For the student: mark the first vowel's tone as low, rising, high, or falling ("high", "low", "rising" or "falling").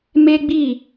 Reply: high